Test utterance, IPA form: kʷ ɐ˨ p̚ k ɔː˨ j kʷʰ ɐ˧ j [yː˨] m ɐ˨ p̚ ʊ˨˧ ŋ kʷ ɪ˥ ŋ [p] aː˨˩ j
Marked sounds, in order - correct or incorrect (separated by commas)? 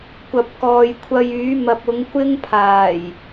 incorrect, incorrect